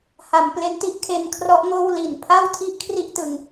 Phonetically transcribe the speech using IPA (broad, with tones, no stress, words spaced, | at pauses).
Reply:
ha˩˦mple˦˥n ti˥˩ʔkʰe˧nkʰrɔ˦˥ʔ ŋoː˥˩w li˨˩n pʰa˥˩wtʰi˥˩ʔ kʰri˥˩ʔtɯ˧ŋ